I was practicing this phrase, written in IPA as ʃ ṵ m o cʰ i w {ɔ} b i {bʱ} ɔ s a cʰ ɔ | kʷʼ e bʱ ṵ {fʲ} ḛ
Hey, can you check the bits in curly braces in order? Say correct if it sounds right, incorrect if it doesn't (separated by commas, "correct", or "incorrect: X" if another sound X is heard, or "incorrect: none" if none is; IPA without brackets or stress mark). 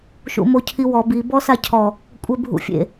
correct, incorrect: b, correct